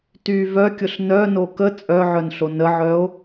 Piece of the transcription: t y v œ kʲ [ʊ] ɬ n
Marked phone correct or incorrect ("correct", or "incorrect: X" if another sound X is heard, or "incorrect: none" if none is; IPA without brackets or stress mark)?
correct